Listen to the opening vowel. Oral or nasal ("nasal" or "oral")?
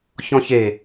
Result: nasal